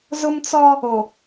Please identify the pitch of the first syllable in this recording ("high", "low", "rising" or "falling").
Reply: high